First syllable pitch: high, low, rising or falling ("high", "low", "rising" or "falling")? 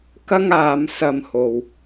high